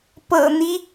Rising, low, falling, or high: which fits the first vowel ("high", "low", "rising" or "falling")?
low